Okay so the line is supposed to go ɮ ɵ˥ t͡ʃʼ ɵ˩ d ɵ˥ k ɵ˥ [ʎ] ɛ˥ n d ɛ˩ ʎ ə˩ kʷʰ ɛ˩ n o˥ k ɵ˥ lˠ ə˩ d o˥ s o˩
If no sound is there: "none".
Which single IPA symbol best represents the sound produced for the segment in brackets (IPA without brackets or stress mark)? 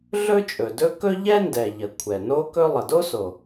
ʎ